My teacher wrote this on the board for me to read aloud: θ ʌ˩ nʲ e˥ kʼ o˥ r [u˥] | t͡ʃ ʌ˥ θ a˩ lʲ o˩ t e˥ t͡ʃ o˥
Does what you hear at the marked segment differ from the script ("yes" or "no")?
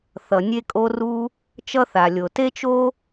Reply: no